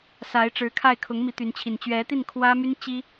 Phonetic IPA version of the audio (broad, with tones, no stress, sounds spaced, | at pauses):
s a˧˥ ɪ̯ ʈ͡ʂ ɻ̩˧˥ kʰ a˥˩ ɪ̯ kʰ ʊ˧˥ ŋ m i˧˥ t̪ y˧˥ n t͡ɕʰ i˨˩ n t͡ɕ ɥ ɛ˧˥ t̪ i˥˩ n kʰ w ä˥ m y˥ n t͡ɕ i˥